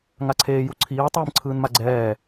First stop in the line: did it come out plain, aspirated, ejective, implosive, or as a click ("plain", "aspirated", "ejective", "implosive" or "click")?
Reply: click